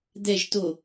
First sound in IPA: d̪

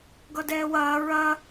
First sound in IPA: ɡ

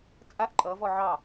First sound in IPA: t͡sʼ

